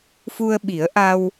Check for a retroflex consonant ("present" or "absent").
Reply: absent